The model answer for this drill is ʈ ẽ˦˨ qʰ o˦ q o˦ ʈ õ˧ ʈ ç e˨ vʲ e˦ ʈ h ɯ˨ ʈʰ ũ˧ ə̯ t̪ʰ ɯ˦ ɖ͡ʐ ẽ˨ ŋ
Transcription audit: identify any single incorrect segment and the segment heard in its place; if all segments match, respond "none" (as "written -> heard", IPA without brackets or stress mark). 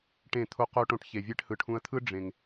qʰ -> t̪ʰ